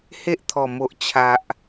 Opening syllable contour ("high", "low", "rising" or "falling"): high